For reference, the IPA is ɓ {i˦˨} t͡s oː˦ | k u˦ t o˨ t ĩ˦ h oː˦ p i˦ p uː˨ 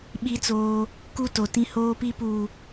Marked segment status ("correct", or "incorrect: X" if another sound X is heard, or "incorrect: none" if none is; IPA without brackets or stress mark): incorrect: i˦